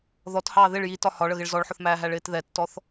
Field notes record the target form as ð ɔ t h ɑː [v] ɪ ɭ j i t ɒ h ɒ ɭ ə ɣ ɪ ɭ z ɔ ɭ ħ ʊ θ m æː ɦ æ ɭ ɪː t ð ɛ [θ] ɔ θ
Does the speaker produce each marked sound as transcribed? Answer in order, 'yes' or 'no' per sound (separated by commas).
no, no